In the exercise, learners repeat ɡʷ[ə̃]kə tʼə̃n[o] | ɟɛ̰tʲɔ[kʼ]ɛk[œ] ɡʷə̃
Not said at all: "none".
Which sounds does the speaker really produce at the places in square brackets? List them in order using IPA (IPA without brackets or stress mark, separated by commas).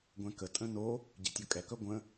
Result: ɛ̃, o, kʼ, œ